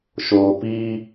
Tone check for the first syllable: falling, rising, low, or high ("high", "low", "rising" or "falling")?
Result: low